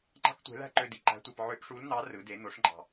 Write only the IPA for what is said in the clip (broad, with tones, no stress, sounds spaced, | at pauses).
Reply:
ŋ͡ǃ ɑ̤˥ k tʷ e̤˧˥ l æ̤˥ ǃ ø˧ d i˩ ǃ æ̤˧˥ tʷ æ˧ p ʕ ø˧˥ ʔ ʂ u˧˥ l n̪ ɑ˧˥ r ɯ˩˧ d e˩˧ n̪ o˩˧ ʂ ŋ͡ǃ ɑ̤˩